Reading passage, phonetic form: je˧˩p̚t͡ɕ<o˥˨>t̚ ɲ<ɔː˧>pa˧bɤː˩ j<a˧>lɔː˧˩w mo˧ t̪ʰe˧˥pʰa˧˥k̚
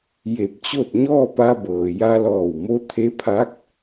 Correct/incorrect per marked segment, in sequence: correct, incorrect: ɔː˥˨, correct

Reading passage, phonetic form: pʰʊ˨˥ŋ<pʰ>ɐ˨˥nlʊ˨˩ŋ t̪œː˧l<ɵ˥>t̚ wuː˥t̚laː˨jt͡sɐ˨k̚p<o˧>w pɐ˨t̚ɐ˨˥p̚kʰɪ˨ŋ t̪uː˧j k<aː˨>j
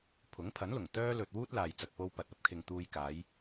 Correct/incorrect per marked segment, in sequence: correct, incorrect: ɵ˨, correct, incorrect: aː˨˧

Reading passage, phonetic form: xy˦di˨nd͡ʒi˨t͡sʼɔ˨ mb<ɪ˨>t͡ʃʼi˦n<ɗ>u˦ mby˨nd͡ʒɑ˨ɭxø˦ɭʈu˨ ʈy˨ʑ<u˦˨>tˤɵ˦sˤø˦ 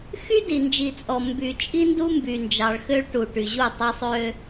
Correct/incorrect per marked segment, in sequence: incorrect: y˨, incorrect: d, correct

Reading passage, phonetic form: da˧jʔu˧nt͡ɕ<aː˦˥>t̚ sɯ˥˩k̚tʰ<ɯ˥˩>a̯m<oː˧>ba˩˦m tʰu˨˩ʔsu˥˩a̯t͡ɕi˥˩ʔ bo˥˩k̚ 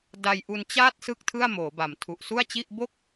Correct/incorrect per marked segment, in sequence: incorrect: aː˥˩, correct, incorrect: oː˩˦

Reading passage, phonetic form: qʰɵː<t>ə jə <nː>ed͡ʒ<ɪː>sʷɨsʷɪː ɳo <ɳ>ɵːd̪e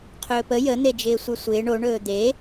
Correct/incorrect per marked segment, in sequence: incorrect: p, incorrect: n̪, correct, correct

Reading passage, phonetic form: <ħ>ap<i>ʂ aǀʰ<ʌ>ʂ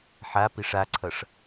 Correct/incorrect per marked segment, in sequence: correct, correct, correct

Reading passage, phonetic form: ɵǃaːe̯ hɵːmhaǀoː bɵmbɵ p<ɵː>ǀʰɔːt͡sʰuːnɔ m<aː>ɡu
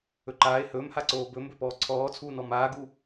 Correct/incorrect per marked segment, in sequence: incorrect: ɔː, correct

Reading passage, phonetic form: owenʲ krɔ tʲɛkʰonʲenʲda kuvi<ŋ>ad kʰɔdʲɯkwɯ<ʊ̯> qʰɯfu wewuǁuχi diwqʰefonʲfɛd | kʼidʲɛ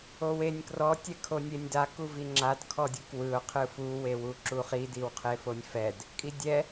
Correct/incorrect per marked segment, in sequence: incorrect: ŋ͡ǁ, correct

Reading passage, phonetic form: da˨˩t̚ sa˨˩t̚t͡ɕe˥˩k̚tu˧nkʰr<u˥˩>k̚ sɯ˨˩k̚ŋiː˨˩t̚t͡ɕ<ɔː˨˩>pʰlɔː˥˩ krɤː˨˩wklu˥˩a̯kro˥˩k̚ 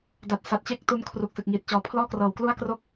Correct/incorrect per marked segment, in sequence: incorrect: u˨˩, correct

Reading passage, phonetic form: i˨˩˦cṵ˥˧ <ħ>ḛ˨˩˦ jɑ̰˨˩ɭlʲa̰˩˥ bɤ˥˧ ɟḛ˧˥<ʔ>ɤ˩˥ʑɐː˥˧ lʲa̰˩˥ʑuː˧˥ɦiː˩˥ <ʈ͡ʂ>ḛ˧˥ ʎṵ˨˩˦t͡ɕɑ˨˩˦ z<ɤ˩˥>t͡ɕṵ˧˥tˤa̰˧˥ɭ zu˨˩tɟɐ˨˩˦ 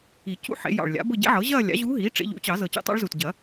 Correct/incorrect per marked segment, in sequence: correct, incorrect: ʕ, correct, incorrect: ɤ˨˩

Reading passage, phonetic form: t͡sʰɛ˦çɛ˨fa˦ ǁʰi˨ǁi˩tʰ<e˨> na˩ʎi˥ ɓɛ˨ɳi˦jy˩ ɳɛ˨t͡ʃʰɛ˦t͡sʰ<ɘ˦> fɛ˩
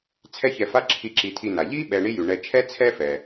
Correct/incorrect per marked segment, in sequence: incorrect: i˨, incorrect: ɛ˦

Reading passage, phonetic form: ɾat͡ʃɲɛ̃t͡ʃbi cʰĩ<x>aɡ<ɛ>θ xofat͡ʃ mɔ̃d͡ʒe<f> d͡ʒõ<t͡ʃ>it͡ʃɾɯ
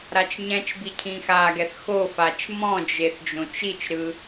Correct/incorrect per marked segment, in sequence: correct, correct, incorrect: θ, correct

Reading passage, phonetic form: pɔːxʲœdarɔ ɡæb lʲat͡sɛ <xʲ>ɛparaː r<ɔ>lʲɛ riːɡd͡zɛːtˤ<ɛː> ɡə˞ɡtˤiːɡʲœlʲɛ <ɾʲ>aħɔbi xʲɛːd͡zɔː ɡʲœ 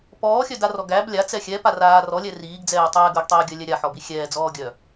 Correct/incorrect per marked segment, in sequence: correct, correct, correct, correct

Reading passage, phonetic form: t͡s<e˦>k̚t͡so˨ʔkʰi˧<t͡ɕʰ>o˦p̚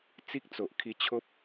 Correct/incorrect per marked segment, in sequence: incorrect: i˦, correct

